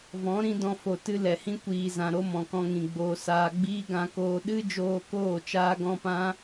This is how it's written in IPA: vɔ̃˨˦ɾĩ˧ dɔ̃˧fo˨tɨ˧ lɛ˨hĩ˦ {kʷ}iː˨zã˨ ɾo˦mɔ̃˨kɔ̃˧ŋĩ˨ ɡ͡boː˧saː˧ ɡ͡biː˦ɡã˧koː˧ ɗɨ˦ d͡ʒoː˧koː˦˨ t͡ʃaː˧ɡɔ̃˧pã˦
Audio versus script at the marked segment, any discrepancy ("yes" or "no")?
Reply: no